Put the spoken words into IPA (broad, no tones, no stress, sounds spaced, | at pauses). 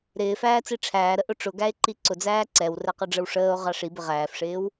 ɾ ɪː f æː t͡s i ʈ͡ʂʰ æː ɾ ə ʔ ʊ ʈ͡ʂ ʊ ɡ æ e̯ ǃ i ǀ ʊ d͡z æː ǀ ɛ w r ɛ q ʌ ɖ͡ʐ ə w ʂ əː o̯ ʁ ɑ ʂ i b ɪ ʁ æː f ʂ ɪː w